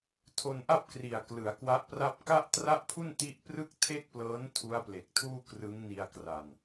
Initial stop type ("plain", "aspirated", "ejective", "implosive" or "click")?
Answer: aspirated